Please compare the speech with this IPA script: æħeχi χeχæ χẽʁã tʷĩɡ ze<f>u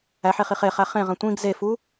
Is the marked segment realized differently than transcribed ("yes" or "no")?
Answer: no